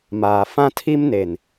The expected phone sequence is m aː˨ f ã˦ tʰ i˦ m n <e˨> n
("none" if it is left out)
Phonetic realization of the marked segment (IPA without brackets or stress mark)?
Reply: e˨